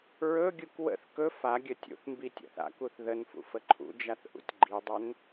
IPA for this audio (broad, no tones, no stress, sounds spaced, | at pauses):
ɹ ɵ ɡʲ u k w ə̰ θ k ɵ f a ɡʲ ə tʲ ṵ θ m b i tʲ ɔ̰ θ a̰ k u θ ð ə n f ṵ f ə ǃʰ ṵ d͡ʒ a θ ʔ ṵ tʲ ɡ͡ǃ i dˤ ɵ n